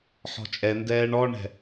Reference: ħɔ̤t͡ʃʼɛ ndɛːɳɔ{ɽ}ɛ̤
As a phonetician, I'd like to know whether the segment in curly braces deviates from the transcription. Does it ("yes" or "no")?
yes